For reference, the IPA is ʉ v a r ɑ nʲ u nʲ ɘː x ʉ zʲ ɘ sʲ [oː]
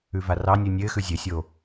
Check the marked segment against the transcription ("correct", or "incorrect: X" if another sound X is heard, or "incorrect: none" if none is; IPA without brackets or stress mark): correct